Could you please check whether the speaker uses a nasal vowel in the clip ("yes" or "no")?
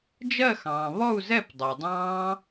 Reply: yes